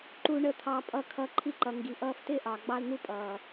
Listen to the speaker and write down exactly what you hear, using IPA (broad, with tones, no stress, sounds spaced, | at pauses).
ǃ u˧ ɳ ə˧ t̪ʰ ɑ˧ pʼ ʌ˧ kʰ ʌ˧ ǃʰ i˦˨ ǃ ʌ˨ ŋ ɡ i˨ ʔ ʌː˦˨ f t ɪː˦ ʔ ɑ˨ ɡ͡b ɑ˦ l n̪ u˦ pʼ ʌː˨